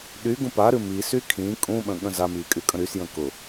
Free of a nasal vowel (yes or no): no